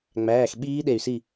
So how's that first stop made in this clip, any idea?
implosive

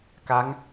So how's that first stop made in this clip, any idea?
plain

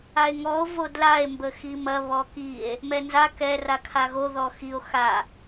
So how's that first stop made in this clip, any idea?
plain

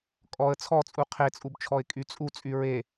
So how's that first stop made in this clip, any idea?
ejective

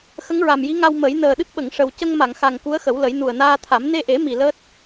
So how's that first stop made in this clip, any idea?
implosive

